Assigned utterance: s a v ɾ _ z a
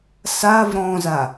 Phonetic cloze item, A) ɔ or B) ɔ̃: B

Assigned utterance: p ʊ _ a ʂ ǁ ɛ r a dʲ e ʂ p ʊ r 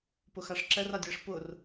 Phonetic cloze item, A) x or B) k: A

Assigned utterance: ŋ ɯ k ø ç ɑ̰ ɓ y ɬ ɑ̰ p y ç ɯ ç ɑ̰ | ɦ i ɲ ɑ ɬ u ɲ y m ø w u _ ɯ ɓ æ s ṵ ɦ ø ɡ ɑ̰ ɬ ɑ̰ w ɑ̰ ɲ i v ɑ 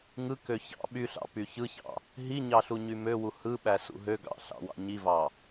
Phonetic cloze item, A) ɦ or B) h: B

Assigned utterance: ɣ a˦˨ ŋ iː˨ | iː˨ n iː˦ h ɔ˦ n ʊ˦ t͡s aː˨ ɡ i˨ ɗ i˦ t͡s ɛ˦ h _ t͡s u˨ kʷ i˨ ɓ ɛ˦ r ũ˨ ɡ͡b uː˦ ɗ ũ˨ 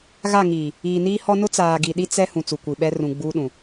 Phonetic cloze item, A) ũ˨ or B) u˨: A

